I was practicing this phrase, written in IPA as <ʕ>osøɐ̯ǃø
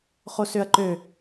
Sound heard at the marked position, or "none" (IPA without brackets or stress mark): χ